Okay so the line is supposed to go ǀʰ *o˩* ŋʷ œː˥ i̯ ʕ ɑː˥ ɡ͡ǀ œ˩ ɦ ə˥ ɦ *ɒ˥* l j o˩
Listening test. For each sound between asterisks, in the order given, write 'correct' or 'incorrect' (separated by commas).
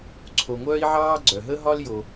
correct, correct